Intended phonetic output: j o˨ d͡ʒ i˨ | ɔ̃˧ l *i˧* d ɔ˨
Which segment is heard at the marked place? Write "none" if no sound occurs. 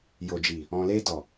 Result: e˧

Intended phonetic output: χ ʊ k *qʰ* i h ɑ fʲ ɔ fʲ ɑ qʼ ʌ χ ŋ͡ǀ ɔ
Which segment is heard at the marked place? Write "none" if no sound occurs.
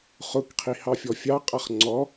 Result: qʰ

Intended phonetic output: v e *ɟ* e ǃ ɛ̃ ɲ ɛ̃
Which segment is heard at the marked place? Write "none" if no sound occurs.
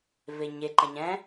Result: ɲ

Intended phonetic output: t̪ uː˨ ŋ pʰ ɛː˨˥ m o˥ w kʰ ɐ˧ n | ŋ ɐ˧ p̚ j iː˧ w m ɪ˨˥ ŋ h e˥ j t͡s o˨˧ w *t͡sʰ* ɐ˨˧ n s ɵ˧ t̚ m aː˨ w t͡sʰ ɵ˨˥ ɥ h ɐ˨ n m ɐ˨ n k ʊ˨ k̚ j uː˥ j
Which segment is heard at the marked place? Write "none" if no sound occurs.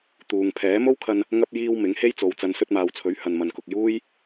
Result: t͡s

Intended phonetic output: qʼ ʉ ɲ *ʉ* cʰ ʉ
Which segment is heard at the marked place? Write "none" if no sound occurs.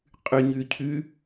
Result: ʉ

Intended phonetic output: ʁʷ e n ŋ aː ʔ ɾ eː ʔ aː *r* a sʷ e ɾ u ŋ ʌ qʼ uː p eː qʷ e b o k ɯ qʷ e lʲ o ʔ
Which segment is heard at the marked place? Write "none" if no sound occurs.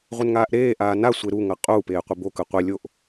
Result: n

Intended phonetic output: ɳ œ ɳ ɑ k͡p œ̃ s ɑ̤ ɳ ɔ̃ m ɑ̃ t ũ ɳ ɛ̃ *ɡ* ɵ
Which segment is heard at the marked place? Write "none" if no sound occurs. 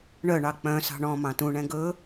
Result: ɡ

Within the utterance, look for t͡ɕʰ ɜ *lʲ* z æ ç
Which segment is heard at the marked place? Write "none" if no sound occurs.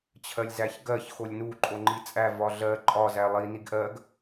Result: lʲ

